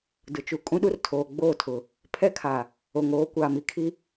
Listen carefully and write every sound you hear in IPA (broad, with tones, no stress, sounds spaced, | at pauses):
d ʊ˨ t͡ʃ u˨ kʼ ũ˦ ɗ u˦ r tʰ oː˨ ɡ͡b oː˦˨ tʰ ʊ˨ | pʰ ɛ˦ kʰ a˨ | o˨ ŋ oː˨˦ kʷ aː˨ m i˦ kʰ i˦